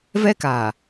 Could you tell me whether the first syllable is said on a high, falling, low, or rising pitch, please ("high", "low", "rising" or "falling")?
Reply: high